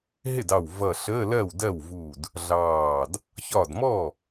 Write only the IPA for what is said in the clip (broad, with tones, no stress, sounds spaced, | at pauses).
ɦ ɪ˥˩ d ɑ˧˩ w v ʌ˧˩ ɬ əː˧˥˧ l ɜ˥˩ w d ɜ˥˩ w v u˧˩ d | ɮ ɑː˧˩ d | ç ɒ˧˩ d m ɔ˥˩